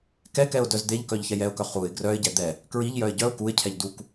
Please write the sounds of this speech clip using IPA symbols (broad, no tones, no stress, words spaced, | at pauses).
kɛkɛʊ̯ dœzd̪eʎkœʎ çɛjɛʊ̯kœ χuɪ̯ ɡrœɪ̯ɟɛ d̪ɛ | kɹiʎjœɪ̯ ɟœʊ̯ kuɪ̯cʰɛʎ duk